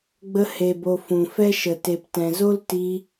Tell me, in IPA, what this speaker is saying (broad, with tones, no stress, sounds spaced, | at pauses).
ɡ͡b ə˧ h e˨ b o˨ f ũ˨ f ɛ˦ ʃ ə˨ t e˨ p t ɛ̃˨ z o˦ l t i˧